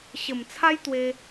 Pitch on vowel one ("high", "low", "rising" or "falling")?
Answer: low